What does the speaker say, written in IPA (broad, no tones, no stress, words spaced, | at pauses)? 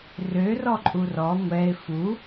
rø rɔǃʼurɔ ŋʷɛɪ̯ fu